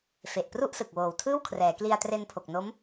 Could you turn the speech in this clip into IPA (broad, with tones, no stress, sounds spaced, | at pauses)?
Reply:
f e˨˩ ʔ p r u˥˩ ʔ s ɯ˨˩ k̚ w oː˨˩ w tʰ ɯː˥˩ w kʰ r ɛː˩˦ k l i˧ a̯ t r e˧ n pʰ o˨˩ k̚ n o˦˥ m